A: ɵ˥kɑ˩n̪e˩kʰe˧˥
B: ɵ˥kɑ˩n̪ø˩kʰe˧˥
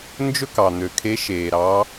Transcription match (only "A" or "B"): B